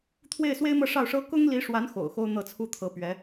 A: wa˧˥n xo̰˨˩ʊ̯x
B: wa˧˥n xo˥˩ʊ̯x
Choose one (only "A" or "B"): A